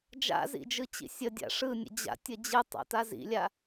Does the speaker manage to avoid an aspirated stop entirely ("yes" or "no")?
yes